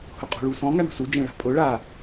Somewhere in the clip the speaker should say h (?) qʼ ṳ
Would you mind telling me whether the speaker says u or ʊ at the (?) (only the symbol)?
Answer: ʊ